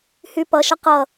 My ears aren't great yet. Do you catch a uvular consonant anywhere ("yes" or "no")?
yes